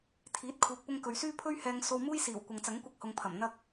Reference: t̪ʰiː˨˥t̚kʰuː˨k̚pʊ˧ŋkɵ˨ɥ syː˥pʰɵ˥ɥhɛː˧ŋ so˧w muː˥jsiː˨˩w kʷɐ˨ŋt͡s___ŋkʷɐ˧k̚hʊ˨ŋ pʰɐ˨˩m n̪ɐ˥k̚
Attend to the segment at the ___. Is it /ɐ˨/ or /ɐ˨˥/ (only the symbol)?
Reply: ɐ˨˥